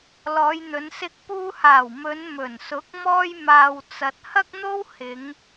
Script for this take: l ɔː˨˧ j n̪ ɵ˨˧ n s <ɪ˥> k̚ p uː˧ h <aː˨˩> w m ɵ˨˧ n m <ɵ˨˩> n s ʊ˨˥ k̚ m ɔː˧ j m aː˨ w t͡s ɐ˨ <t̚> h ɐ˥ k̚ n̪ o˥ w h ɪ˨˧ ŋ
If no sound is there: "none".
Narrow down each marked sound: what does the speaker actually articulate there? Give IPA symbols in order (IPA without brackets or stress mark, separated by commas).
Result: ɪ˧, aː˨˩, ɵ˨˩, t̚